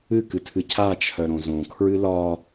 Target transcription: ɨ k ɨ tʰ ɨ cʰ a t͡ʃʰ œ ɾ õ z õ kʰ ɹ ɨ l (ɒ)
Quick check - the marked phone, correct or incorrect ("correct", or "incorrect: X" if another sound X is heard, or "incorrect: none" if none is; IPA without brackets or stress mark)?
correct